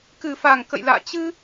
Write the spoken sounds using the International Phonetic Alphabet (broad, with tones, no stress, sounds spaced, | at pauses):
k ɨ˨˩ f a˨˩ ŋ k ə̰˧˨ j l a̰ː˧˨ t͡ɕ ɨ˧